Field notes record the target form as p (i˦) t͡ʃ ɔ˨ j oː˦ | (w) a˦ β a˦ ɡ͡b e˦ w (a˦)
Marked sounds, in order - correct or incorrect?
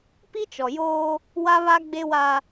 correct, correct, correct

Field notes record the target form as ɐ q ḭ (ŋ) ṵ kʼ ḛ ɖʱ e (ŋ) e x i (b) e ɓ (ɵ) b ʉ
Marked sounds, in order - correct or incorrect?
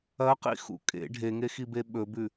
incorrect: x, correct, correct, correct

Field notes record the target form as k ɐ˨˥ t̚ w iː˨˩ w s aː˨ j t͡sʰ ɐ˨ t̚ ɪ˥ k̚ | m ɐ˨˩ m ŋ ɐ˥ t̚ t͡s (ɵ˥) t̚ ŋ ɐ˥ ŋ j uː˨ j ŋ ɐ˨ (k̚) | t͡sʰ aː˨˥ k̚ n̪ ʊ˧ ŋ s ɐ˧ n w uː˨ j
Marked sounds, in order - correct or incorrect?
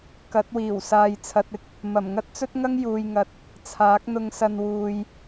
correct, incorrect: t̚

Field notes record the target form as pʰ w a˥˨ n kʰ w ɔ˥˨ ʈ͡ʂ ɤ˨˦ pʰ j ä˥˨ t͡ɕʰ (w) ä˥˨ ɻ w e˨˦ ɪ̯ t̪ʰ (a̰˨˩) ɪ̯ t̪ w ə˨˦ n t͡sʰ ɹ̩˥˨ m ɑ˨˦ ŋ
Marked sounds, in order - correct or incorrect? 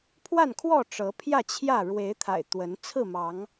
incorrect: j, correct

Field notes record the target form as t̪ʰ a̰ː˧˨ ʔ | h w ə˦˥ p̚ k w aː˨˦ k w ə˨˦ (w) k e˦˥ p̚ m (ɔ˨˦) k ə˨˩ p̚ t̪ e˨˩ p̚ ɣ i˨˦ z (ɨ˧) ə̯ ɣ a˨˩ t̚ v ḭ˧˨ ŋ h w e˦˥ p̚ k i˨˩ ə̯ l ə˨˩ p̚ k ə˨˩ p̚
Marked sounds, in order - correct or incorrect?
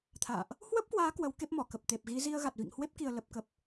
correct, incorrect: ɔ˧˩, incorrect: i˧

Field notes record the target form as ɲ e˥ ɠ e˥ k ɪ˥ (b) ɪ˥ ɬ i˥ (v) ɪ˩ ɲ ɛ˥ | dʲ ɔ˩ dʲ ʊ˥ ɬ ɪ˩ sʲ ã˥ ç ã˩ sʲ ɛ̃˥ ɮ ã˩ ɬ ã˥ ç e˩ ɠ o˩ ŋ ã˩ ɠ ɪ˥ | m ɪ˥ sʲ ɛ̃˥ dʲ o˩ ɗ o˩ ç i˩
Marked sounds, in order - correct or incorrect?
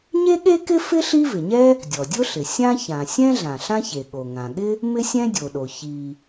incorrect: f, correct

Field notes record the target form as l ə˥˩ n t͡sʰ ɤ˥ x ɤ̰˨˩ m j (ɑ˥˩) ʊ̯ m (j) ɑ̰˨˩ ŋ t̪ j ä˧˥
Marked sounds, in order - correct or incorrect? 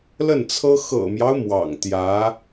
incorrect: ɑ˦, incorrect: w

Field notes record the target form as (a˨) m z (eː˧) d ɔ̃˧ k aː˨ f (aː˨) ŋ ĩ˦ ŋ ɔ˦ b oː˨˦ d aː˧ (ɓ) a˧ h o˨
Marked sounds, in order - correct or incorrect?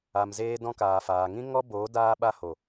correct, correct, correct, correct

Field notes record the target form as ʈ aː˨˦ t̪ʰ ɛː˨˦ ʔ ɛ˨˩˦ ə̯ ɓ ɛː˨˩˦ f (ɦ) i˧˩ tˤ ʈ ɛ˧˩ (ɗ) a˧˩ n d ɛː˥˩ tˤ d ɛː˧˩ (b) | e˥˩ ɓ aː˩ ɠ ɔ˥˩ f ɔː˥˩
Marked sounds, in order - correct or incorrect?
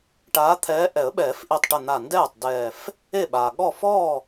incorrect: ʔ, incorrect: n̪, incorrect: f

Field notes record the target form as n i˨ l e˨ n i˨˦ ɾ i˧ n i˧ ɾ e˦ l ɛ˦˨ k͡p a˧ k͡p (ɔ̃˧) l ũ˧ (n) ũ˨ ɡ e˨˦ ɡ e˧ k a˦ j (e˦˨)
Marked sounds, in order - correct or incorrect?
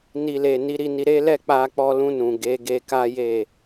incorrect: ɔ˧, correct, correct

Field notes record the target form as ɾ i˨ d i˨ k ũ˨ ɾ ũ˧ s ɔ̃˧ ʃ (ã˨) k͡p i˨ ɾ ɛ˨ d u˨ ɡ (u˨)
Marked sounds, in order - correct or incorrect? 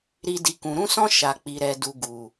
incorrect: a˨, correct

